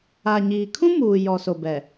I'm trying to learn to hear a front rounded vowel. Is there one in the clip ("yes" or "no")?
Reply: no